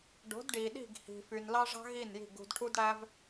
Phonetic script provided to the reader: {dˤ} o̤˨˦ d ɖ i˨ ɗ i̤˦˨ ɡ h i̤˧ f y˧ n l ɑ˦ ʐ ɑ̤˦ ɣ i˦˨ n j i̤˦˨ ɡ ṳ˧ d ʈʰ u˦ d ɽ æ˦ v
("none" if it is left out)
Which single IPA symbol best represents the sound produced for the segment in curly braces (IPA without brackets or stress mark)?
ɖ